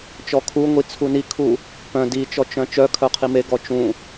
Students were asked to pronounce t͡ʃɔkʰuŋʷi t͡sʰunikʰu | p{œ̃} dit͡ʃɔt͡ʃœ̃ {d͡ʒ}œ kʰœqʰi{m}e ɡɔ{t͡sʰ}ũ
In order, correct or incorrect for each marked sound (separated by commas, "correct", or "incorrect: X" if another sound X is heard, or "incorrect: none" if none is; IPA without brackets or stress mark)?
correct, incorrect: t͡ʃ, correct, incorrect: t͡ʃ